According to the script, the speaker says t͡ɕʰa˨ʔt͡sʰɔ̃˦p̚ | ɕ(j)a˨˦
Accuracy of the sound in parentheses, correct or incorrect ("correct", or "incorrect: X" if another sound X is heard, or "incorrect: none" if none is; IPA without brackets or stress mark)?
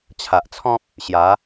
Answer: correct